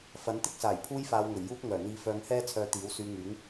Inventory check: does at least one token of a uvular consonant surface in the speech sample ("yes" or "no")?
no